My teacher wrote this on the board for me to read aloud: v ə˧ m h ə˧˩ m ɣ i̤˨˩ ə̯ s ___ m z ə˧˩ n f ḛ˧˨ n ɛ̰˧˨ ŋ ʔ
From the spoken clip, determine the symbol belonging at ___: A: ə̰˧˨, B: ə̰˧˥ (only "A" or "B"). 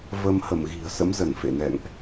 B